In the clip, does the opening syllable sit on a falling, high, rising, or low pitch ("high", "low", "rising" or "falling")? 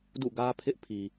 falling